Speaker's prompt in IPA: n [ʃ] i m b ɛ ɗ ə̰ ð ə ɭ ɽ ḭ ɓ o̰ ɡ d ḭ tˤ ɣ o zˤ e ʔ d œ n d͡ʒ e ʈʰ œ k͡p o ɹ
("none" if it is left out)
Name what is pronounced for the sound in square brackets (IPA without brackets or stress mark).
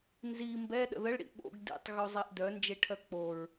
z